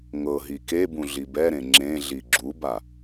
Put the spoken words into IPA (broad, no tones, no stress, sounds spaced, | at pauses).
ŋ ɤ ɦ i k e b ũ ɮ i b ɛ ɾ ẽ ŋ͡ǁ ẽ ɮ i ɡ͡ǁ u b a